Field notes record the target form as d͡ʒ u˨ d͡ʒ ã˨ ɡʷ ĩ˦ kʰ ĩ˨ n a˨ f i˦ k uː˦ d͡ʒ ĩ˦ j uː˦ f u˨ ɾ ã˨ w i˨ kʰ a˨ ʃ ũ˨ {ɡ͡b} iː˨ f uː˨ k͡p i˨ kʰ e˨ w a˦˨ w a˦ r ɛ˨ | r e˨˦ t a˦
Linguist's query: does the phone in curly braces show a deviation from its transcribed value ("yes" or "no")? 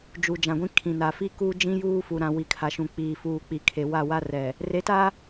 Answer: yes